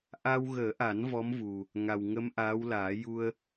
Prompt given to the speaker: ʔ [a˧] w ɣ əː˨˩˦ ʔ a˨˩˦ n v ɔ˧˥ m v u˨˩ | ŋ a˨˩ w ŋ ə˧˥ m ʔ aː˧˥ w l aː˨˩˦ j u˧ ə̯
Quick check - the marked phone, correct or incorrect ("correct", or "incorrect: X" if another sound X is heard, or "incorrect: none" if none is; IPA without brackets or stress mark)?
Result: correct